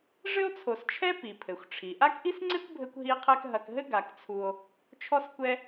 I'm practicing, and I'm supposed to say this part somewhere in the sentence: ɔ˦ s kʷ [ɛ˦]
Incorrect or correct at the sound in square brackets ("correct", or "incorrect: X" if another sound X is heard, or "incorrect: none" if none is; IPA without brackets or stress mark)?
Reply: correct